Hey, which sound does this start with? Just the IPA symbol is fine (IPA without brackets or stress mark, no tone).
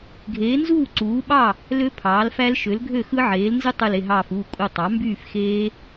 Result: ɡʱ